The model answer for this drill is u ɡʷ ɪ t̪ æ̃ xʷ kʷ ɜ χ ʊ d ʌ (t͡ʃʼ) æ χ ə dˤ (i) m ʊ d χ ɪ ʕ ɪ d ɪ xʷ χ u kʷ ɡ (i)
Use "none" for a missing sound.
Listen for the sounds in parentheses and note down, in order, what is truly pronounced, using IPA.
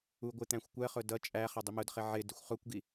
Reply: t͡ʃʼ, i, i

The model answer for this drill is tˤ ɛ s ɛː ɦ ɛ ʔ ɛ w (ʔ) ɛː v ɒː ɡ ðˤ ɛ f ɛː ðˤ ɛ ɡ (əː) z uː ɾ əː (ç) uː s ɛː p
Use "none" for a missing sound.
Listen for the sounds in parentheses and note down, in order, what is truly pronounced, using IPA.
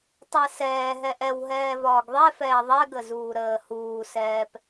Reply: ɦ, ə, h

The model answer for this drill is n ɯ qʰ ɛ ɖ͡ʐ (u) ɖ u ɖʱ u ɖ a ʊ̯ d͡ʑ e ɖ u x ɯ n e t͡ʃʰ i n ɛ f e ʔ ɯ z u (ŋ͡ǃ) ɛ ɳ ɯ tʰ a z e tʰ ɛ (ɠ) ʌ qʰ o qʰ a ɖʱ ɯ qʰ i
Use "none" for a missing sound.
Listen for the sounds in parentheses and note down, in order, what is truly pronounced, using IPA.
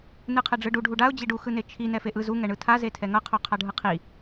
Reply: ɯ, ŋ, ŋ

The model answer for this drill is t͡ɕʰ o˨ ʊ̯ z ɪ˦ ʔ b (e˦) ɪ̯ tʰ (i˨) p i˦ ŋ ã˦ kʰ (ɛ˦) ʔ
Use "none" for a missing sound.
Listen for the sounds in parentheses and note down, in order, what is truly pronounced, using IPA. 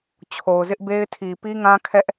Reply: e˦, i˨, ɛ˦

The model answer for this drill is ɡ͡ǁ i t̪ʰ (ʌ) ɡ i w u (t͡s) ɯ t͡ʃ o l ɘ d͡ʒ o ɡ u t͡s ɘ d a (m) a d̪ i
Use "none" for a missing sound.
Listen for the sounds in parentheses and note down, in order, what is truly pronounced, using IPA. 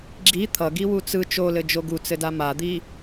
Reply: ʌ, t͡s, m

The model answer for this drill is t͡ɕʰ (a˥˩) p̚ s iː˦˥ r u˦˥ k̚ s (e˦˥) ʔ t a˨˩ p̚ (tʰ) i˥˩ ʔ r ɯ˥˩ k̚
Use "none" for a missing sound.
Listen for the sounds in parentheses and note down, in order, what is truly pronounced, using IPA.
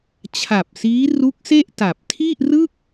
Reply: a˨˩, e˥˩, tʰ

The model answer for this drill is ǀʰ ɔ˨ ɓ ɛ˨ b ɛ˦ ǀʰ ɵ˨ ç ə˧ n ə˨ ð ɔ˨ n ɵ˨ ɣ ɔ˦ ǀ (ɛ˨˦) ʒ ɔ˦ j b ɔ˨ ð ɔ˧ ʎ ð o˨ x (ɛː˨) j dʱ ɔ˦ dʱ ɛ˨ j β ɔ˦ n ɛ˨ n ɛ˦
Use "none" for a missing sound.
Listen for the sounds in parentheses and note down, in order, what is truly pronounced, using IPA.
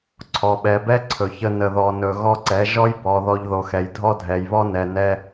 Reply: ɛ˨˦, ɛ˨

